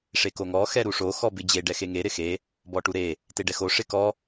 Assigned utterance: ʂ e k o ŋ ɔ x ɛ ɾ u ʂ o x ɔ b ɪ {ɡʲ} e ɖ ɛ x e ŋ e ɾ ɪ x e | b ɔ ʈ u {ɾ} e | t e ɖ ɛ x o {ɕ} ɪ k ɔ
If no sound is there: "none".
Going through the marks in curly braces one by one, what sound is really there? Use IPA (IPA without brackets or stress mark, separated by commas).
d͡ʑ, ɾ, ʂ